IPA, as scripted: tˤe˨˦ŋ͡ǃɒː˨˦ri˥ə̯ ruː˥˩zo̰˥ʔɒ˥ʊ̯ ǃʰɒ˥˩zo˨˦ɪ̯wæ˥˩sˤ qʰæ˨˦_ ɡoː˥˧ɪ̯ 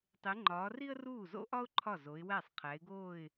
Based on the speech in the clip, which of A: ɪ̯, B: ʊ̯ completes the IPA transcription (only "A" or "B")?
A